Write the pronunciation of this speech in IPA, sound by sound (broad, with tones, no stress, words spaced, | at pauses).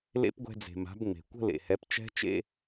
lḛ˦˥pɡʷɛ̤˧d͡ze̤˩ ma̤˩˥bŋ͡me̤˩ kʷə̤˥˧lḛ˩hɛ˩˥p t͡ʃɛ̤˦˥t͡ʃḛ˥˧